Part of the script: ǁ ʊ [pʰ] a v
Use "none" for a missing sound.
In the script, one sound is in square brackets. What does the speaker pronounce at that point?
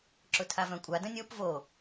tʰ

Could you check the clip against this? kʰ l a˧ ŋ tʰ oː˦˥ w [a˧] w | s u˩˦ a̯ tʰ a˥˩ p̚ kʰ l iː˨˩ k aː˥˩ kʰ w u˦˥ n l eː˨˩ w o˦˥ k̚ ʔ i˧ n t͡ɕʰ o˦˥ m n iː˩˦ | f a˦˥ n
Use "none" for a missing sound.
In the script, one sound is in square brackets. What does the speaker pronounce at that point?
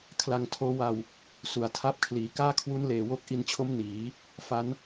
a˧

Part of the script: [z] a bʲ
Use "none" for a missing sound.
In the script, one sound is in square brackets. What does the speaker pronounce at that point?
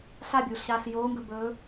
ɬ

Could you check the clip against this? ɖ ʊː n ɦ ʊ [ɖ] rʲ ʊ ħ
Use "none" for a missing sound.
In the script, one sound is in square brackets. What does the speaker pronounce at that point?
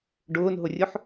none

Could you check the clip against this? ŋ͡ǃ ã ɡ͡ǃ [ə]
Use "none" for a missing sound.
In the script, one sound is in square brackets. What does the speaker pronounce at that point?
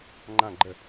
ə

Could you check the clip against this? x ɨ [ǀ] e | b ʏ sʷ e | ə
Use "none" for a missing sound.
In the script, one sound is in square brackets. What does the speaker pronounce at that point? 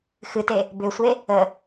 t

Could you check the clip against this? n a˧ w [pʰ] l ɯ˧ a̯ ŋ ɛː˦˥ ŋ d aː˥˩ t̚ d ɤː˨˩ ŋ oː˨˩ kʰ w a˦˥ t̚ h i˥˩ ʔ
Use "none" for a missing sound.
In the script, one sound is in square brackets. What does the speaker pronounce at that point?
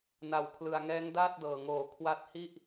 kʰ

